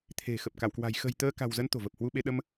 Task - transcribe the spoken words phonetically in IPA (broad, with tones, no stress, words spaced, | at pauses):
t̪ʰe̤˨˩xə˨˩p̚ ka˧˩wkwa̤˨˩j xə̤˨˩j t̪əː˧ ka̤˨˩wzə˨˦n t̪o̤˨˩və˨˩p̚hwu˧ɓe˧ ɗə˧m